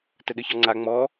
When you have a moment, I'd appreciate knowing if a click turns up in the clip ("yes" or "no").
yes